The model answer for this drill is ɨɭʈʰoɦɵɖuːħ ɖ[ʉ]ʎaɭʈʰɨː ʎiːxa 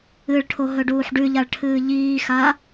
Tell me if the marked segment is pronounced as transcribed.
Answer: yes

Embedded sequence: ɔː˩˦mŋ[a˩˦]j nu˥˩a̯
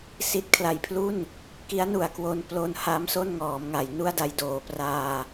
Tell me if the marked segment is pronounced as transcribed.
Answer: yes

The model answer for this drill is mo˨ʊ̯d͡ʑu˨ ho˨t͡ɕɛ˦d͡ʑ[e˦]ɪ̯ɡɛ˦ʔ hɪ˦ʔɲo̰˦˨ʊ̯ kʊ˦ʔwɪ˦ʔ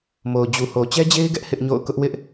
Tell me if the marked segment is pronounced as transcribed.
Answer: yes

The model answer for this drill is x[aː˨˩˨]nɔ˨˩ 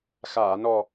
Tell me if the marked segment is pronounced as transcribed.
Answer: yes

